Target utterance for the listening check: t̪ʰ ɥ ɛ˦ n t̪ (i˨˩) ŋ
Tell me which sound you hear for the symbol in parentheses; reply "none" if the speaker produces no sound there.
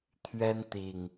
i˨˩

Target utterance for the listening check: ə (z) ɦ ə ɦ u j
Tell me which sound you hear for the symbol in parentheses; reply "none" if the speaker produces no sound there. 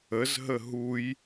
z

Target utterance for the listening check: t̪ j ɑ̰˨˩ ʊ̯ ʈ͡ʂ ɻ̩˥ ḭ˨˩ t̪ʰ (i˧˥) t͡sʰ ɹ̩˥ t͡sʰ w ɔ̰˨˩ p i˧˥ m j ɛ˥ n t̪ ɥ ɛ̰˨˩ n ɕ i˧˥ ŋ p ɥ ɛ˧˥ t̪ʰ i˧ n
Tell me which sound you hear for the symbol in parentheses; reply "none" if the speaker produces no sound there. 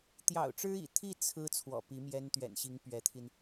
i˥˩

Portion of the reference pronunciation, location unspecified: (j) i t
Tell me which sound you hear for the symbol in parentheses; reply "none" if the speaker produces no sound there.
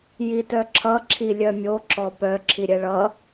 j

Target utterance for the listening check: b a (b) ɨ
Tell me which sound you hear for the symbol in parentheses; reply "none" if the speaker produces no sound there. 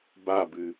b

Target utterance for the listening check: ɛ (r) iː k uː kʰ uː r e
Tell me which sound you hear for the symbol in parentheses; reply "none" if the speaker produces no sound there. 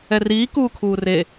r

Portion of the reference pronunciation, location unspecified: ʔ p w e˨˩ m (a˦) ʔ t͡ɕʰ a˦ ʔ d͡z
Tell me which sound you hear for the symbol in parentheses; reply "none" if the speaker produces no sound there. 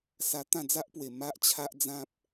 a˦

